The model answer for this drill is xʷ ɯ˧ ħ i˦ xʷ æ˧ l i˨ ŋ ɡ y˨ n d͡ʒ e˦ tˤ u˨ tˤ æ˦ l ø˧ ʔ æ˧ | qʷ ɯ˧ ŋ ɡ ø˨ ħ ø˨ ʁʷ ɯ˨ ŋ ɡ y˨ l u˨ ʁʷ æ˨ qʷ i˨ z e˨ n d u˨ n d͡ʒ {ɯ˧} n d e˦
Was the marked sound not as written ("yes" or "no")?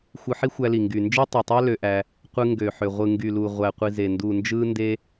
yes